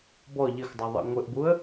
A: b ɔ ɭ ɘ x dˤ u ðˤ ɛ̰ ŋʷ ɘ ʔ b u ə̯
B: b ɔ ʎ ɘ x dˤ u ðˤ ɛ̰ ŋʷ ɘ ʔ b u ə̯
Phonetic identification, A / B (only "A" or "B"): B